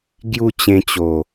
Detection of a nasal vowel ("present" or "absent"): present